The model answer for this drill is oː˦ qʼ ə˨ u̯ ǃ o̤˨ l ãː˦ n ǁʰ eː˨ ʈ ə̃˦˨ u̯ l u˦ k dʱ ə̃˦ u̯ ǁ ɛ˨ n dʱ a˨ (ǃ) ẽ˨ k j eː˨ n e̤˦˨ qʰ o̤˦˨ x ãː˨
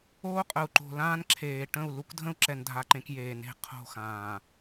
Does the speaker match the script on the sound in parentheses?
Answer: yes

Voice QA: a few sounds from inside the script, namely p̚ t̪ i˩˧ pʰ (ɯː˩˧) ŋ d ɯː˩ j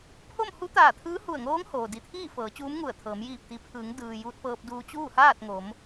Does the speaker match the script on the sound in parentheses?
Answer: yes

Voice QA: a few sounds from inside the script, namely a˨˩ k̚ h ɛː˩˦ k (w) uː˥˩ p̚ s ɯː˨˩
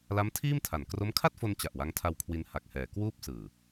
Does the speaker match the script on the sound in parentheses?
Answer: yes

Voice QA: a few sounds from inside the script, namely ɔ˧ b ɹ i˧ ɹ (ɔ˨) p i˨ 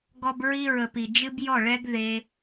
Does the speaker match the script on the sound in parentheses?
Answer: no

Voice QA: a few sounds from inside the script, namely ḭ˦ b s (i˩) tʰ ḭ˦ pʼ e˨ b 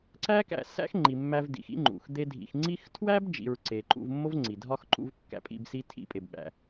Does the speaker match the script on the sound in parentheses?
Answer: no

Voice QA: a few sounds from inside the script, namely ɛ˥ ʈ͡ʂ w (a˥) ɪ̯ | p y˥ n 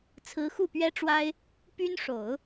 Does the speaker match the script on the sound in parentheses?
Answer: yes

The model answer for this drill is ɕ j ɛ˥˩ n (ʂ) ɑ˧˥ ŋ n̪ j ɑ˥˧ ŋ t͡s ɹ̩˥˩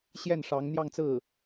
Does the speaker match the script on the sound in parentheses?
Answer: yes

